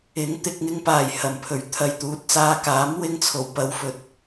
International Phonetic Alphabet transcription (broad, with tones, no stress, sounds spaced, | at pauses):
ɪ˨˥ ŋ t̪ ɪ˨ k̚ ŋ ɪ˧ ŋ p aː˨˩ j h ɐ˨˩ m pʰ ɵ˨˩ ɥ t̪ʰ ɐ˨ j t̪ uː˨ t̚ t͡s aː˧ k aː˨˥ m w ɪ˥ ŋ t͡sʰ o˨˩ w p ɐ˧ w f ɵ˨˥ t̚